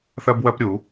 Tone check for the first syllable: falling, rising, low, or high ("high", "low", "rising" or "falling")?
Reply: high